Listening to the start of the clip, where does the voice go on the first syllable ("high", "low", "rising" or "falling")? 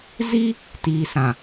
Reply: high